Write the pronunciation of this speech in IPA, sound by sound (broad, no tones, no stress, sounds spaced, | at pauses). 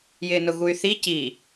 j ɪː n ʊ ɣ u y̯ θ i c i